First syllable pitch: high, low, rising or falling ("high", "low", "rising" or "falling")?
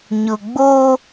low